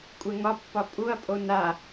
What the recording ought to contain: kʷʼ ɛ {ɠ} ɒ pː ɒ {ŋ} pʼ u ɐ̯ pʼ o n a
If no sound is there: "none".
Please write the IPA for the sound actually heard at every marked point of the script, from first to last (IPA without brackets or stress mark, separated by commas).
ŋ, none